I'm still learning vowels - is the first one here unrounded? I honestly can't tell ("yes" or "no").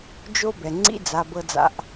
no